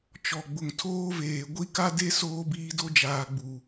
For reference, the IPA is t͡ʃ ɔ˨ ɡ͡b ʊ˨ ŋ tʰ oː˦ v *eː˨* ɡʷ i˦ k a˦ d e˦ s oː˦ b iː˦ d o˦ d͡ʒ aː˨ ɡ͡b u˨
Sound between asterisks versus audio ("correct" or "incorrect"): correct